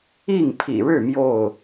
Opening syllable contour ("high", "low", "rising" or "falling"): falling